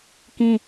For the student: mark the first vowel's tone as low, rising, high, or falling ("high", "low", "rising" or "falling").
high